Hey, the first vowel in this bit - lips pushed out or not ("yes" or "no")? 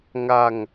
no